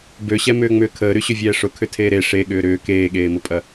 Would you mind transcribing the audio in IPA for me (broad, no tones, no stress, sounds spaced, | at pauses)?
b ø ɕ ɛ m ʏː ŋ͡m ʏː kʰ əː ɾ y ɕ ʏ vʲ ɛː ʂ ʊ kʰ ʏ tʰ eː ɾ e ʂ e ɠ ʏː ɾ ʏː k eː ɠ eː m ʊ pʼ ɐ